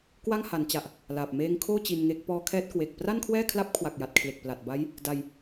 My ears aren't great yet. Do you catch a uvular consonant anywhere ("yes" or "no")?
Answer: no